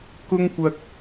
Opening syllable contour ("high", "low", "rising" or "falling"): high